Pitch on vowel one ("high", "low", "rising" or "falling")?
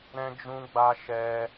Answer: high